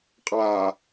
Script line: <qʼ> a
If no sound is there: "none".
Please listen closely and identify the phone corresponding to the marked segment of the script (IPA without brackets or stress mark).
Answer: qʼ